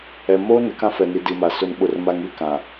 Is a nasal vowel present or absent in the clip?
present